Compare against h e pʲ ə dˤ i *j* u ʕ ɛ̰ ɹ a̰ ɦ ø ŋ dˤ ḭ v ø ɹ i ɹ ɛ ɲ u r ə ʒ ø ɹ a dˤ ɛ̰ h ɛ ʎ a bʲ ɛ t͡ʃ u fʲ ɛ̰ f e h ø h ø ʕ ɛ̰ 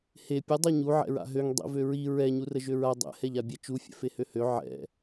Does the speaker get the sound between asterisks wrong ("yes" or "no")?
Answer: yes